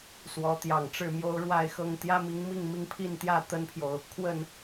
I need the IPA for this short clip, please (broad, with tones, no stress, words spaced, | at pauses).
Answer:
swɔ˨˦t̪jɑ˨˩ŋʈ͡ʂɻ̩˥˨mjo˦ʊ̯ ɻwa˥˨ɪ̯xɤ˥˨ŋ t̪jä˦mi˨˦ŋ mi˥˨ŋmi˥˨ŋpʰi˥˨nt̪jä˥˨ t̪ə˦npʰjo˨ʊ̯ | kʰwə˥˨n